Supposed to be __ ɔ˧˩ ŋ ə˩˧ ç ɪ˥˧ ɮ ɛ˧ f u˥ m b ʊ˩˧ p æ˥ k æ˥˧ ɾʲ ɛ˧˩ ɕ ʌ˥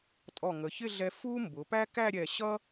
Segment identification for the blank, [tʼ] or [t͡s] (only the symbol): tʼ